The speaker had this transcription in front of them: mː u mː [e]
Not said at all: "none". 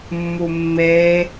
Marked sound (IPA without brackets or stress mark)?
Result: e